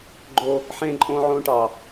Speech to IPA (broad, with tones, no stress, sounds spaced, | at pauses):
ɡ͡ǃ o˦ | ħ ẽ˦ ǃʼ õ˦ ʕ õ˦ ʈ ɑ˨